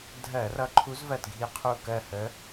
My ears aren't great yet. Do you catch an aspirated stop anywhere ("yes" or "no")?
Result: yes